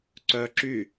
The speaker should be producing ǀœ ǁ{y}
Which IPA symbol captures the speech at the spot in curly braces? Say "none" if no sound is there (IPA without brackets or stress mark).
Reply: y